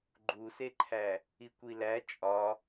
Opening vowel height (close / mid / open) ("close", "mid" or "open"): close